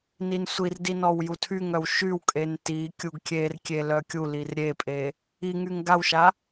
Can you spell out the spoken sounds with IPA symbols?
n i n sʷ i r d i n ɔ w j u tʰ y ŋ œ w ʃ y w kʼ e n t i kʲ u ɡ kʲ e r kʲ e l œ kʲ u l i r ɾʲ e pʼ e | i ŋ y ŋ ɡ a w ʃ a

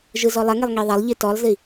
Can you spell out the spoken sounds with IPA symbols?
ʒ ɯ z ɔ lˠ ɐ ŋ e lˠ ŋ i ðˤ ɐ lˠ ʎ i t ɔ lˠ z i

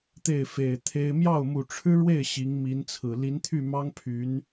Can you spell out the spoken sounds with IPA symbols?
t̪ e˥˩ ɪ̯ f e˨˩ ɪ̯ t̪ʰ e˥ ɪ̯ m j ɑ˥˩ ʊ̯ m u˨˩ ʈ͡ʂʰ ɻ̩˥ ɻ w e˥˩ ɪ̯ ɕ i˧˥ ŋ m i˧˥ n t͡sʰ ɹ̩˨˩ l i˧˥ n t̪ʰ y˥˩ m ɑ˥ ŋ pʰ y˧˥ n

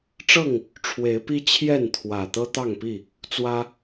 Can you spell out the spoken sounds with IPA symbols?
ʈ͡ʂ ɤ˥˨ ŋ | ʈ͡ʂʰ w e˨˦ ɪ̯ p i˦ t͡ɕʰ j ɛ˥˨ n t̪ʰ w ä˨˩ t̪ ɤ˦ t̪ ɑ˥˨ ŋ p i˥˨ | t͡s w ä˦

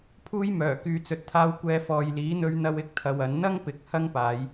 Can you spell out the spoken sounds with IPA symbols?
pʰ uː˥ j m œː˨˩ k yː˧ t͡s ɵ˧ t̚ t̪ʰ aː˥ w kʷ ɛː˧ f ɔː˨ j l iː˨˥ n̪ ɵ˥ ɥ n̪ ɐ˥ w ɪ˥ k̚ t̪ʰ ɐ˧ w ɐ˨˥ n n̪ ɐ˥ ŋ p ɪ˨˥ k̚ h ɐ˥ ŋ p aː˨˧ j

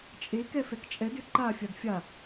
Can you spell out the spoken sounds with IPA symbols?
t͡ʃʼ e k ɛ f ɛ k t͡ʃʼ ɛ d ʏ ǃ a fʲ a d fʲ a

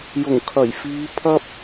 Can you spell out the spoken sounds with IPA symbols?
j ʊ˨˩ ŋ kʰ ɐ˨˩ j f iː˨˧ pʰ ɐ˥ p̚

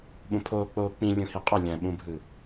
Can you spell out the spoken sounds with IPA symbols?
ɓ ũ pʰ oː k͡p oː k͡p ĩ lʲ ũ h i qʼ ɐ lʲ ɐ̃ ɓ ũ bʱ ɯ

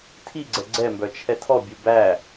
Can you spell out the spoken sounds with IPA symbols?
tʰ i ɡ͡ǀ ɛ ɡ͡ǀ ɛ m b œ t͡ʃʰ ɛ tʰ ɔ bʲ u b æ

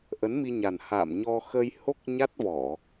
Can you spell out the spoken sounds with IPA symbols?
ʔ ə˨˦ n m i˧ ɲ a˨˩ n h a̰ː˧˨ m ɲ ɔ˧ x ə˧ j h o˦˥ k̚ ɲ a˦˥ t̚ v ɔ˧˩˨

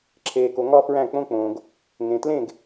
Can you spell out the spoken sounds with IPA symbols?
ǁʰ eː˩ k o˩ ŋ ɒ˥ f ɹ æ̃˥˩ k͡p õ˥ k͡p õː˩ ɡ | ŋ ẽ˩ t l ẽ˥˩ ɡ

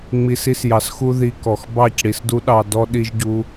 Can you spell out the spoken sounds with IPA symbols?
ŋ͡m i˨ s i˧ s j ɑ˨ s x u˧ ð i˧ k ɔ˨ x b ɑ˦˨ c ɽ i˨ s d u˦ ɗ ɑ˧ d ɔ˧ ɗ i˦ ʒ ɟ u˦

